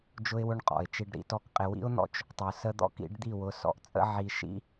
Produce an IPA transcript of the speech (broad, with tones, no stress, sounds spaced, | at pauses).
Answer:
d͡ʒ ʊ˦ ɪ̯ w ʊ˦ ɳ qʼ ɔ̰˨ ɪ̯ t͡ʃ i˧ ɖ ɾ ḭ˧ t ɔ˦ k qʼ ɪ˧ w ḭ˦ ʊ̯ n̪ ɔ̰˦ t͡ʃ | tˤ ʊ˨ s ə˦ d̪ ɔ̰˦ k ḭ˨˦ ɖ d̪ i˦˨ w ʊ˨˦ s ɔ̰˧ ʔ t͡sʼ ə̰˦ ʕ i˧ ʃ ḭ˦